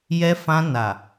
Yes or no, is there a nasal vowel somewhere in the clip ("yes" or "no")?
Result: yes